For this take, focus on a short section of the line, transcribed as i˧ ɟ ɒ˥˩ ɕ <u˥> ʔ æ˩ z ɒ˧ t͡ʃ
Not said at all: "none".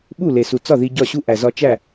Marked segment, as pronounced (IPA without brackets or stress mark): u˥